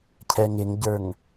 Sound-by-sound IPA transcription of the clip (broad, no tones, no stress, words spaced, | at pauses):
cʰɛŋɪŋɟə˞ŋ